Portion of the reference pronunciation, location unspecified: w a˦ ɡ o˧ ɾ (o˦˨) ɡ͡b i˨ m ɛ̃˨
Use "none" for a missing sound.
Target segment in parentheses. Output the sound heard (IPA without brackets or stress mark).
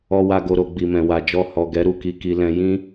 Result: o˧